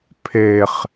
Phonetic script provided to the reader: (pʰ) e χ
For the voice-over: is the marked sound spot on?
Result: yes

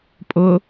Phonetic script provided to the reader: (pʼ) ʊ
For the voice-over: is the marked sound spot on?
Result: yes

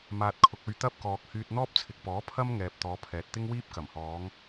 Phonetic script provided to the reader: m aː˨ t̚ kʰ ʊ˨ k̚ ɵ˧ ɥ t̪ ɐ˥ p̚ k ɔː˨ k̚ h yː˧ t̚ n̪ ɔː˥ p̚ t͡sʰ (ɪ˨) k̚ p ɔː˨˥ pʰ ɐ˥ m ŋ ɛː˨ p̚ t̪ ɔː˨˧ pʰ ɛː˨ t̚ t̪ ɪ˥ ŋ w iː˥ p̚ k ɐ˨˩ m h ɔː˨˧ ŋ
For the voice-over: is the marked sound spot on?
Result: yes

